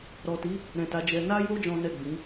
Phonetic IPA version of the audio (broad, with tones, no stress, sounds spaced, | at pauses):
ɾ ɔ˨ t i˨˦ | ɾ ɛ̃˨ t a˨˦ d͡ʒ ɛ˧ n a˦ j o˦ d͡ʒ ɔ̃˦ n ɛ˦˨ ɡ͡b ĩ˨˦